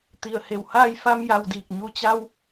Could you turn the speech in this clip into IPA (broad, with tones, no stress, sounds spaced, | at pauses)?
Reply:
t̪ i˧˩ ə̯ h e˧˩ w h aː˥˨ j f a˧ m j a˧ w d iː˧˩ k̚ ɲ u˧˩ t͡ɕ a˧ w